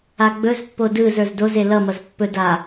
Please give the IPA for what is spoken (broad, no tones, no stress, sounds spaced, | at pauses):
a ɡ͡b ɵ z pː o d ɯ z ə˞ z d o z e l ʌ m ʌ z pː ɵ d a